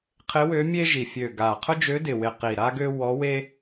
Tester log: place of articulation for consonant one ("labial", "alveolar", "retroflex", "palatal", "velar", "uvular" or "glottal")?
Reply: uvular